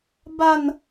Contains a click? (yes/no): no